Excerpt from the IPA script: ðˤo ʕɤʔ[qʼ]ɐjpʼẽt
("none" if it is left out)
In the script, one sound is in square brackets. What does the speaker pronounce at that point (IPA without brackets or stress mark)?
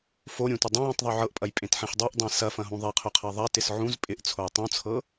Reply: pʼ